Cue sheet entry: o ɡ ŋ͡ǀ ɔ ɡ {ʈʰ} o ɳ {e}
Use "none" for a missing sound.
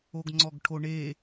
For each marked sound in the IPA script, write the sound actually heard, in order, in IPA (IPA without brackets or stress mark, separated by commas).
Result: ʈʰ, e